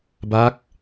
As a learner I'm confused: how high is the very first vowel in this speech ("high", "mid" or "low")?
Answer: low